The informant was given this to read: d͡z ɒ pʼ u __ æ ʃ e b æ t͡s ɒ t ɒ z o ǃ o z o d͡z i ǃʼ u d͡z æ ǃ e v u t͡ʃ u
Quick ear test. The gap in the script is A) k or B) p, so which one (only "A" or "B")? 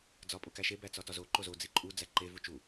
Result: A